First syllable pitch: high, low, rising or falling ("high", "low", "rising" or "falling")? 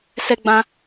high